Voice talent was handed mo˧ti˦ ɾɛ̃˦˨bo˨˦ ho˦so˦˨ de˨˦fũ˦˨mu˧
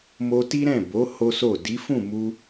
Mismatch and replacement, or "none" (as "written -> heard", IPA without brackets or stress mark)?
e˨˦ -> i˨˦